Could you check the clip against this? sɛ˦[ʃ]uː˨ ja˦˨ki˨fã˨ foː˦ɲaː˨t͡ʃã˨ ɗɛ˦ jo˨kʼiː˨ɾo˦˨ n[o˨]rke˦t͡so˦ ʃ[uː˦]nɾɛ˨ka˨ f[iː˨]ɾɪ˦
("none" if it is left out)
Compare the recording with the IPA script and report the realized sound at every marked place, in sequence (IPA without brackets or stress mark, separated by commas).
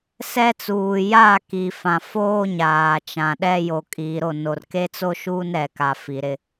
t͡s, o˨, uː˦, i˨